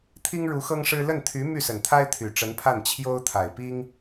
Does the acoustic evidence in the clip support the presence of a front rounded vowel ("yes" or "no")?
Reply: yes